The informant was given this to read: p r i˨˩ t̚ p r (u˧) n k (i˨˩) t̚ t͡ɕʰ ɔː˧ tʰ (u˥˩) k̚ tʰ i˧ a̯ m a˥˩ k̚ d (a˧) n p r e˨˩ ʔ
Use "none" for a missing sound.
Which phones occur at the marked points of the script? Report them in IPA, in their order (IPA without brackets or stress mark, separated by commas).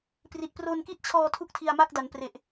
o˧, i˥˩, u˥˩, a˩˦